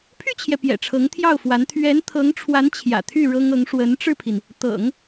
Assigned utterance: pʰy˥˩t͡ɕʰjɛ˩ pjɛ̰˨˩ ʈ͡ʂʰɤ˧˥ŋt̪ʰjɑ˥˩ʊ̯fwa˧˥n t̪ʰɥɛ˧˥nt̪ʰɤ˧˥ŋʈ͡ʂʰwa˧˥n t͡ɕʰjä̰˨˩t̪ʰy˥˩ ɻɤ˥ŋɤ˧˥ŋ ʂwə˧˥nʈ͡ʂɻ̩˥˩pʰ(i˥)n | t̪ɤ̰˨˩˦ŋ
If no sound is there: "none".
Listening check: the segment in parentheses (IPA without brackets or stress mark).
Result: i˩